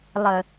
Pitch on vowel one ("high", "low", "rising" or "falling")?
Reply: low